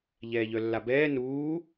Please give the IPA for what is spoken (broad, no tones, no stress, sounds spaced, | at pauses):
ʎ ɛː ʎ œ lː a b ɛː n uː